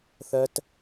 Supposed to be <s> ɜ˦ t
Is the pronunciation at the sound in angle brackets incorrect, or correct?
incorrect